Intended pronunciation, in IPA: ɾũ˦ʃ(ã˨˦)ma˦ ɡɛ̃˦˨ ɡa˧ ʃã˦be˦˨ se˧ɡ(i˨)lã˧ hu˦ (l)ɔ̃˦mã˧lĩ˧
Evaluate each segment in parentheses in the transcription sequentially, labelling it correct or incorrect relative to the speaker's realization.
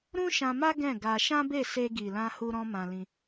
incorrect: ã˧, correct, incorrect: ɾ

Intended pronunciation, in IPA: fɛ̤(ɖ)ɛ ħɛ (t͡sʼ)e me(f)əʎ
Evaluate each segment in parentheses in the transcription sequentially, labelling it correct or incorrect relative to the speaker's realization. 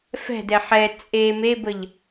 incorrect: d, correct, incorrect: b

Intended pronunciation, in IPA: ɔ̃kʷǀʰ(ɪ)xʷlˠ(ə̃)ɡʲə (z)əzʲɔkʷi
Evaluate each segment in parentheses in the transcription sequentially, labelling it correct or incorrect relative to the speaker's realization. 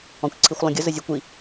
incorrect: i, correct, correct

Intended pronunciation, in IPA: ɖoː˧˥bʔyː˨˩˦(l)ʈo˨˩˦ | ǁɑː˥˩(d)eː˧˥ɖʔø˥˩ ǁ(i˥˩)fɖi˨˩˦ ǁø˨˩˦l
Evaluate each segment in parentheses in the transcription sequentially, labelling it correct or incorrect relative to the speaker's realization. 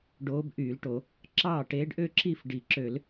correct, incorrect: ʈ, correct

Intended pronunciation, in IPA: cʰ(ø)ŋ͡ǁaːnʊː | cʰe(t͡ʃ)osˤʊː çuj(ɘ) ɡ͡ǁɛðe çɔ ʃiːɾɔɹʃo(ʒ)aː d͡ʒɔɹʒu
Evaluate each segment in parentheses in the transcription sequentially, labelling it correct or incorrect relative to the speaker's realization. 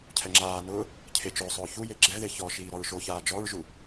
incorrect: ɛ, correct, incorrect: e, incorrect: ç

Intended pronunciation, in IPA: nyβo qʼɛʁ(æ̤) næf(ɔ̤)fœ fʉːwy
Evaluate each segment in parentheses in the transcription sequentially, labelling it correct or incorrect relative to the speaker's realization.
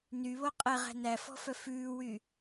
correct, correct

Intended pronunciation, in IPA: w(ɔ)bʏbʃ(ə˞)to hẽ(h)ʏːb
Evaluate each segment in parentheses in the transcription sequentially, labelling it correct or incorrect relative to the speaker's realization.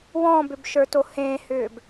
incorrect: ɔ̃, correct, correct

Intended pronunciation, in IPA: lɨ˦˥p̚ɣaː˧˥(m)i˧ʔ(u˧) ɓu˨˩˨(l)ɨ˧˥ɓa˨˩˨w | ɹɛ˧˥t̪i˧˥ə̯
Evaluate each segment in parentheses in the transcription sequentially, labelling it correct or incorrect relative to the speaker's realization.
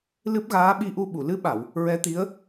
incorrect: ɓ, correct, correct

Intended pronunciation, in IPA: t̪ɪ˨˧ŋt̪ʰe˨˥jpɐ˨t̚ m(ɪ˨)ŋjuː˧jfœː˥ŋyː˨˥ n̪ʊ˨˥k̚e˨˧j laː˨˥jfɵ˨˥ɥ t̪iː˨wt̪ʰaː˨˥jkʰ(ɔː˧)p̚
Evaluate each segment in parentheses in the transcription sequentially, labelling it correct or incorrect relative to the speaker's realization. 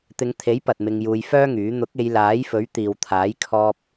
incorrect: ɪ˧, correct

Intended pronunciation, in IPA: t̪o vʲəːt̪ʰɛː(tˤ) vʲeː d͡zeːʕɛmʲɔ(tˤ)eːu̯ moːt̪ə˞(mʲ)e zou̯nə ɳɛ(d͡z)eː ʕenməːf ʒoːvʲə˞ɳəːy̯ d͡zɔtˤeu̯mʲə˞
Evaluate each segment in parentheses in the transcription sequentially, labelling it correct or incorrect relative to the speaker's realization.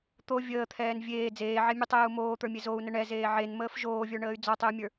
incorrect: n, correct, correct, incorrect: z

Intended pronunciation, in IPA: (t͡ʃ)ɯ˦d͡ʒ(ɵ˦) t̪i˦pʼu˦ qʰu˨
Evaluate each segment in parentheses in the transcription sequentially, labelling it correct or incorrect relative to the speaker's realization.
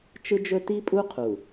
correct, correct

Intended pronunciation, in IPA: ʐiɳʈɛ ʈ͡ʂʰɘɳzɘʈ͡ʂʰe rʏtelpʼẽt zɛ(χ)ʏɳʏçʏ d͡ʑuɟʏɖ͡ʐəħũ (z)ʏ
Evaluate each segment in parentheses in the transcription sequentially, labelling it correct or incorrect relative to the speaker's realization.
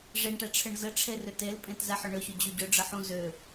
incorrect: ħ, correct

